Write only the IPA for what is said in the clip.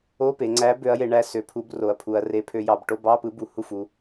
o˧˥˧ p e˩˧ ŋ͡ǀ æ˨˥ b ø˨˥ ɐ̯ j e˩˧ ɳ æ˥˩ s ø˨˥ pʰ u˨˥ b r o˩˧ ɐ̯ pʰ u˩˧ ɐ̯ r e˨˥ pʰ ø˨˥ j ɑ˩˧ b ʈ o˧˥˧ b ɑ˧˥˧ p ɯ˨˥ b u˩˧ h u˥˩ f u˩˧

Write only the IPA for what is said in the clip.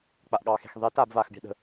k͡p a ʔ ɠ ɑː x e̤ x ðˤ e t aː b v a x bʲ ɑ̤ ɗ ə̤

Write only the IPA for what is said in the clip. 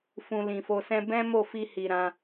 f ũ˧ l ĩ˨ f o˧ s ɛ̃˦ b ɛ̃˦ m o˦˨ f i˧ h i˨ ɾ ã˧

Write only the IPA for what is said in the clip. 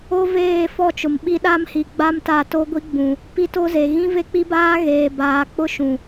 o˦ v eː˦˨ f ɔ˦˨ t͡ʃ ʊ˨ m ɓ i˦ ɗ a˦ m h i˨ ɡ͡b a˦ m t a˦˨ t o˦ ɡʷ i˦ ɡ͡b ũ˨ | p i˦ t o˦ z e˨ ɣ ĩ˦ v e˦ k͡p i˦ b aː˦ ɣ eː˨ b aː˨ k͡p ʊ˦ ʃ ũ˨

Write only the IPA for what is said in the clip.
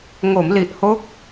ŋ o˩˦ m l i˨˩ ʔ h o˦˥ k̚

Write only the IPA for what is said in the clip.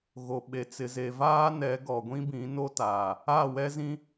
ɣ o˨ ɓ e˨ t͡s ɪ˨ z e˨ v aː˦ n ɛ˨˦ ɡ ɔ˨ ɡʷ ĩ˦ b ĩ˨˦ n o˦ t aː˨ | a˦˨ w ɛ˦ z ĩ˦

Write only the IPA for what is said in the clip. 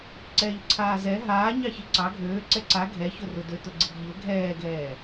ǀ ɛː ʎ ǀʰ aː z ɛ ɦ aː ɲ ɑ ç i ǀ ɑ ɡʱ øː ǀ ɛ ǀ a ɡʱ ɛ ç ʊ r ʊ d ø t ʊ ɡ͡ǀ i ɡ ʎ ʊ ɡʱ ɛː ɡ ɛː

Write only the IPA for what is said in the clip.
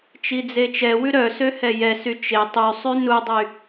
t͡ʃ i d͡z e t͡ʃ ɛ w ʉ ɾ œ s ø h ɛ j ɛ s y t͡ʃ e tˤ y sˤ y n u dˤ y

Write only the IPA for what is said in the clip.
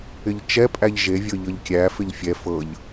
ɪ ʎ t͡ʃ ɛ pʼ æ ʎ ʒ e vʲ ɤ ʎ ɤ ʎ kʲ æ f ɪ ʎ fʲ ɛ f ɤ ʎ

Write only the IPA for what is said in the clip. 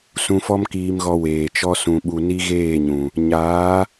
s ũ˧ f ɔ˦ m k iː˧ m ɣ ɔ˧ w eː˨ t͡ʃ ɔ˦ s ũ˧ ɓ u˧ n i˦ ɣ eː˦˨ ɲ ũ˨ | ɲ aː˨˦

